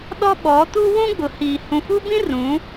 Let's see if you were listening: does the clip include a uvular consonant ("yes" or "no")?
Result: no